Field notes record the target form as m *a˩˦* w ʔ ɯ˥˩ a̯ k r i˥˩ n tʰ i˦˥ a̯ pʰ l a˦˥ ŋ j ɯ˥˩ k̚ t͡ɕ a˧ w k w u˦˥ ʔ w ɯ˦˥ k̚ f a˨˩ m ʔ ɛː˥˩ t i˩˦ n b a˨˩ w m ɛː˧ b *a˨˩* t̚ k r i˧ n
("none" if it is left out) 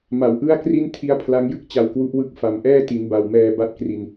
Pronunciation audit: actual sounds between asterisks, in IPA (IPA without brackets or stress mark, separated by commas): a˩˦, a˥˩